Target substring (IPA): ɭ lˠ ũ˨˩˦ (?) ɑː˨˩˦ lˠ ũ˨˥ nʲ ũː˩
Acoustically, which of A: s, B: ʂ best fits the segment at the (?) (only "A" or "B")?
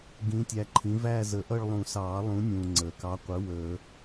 A